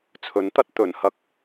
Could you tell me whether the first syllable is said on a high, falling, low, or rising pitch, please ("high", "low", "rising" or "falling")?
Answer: rising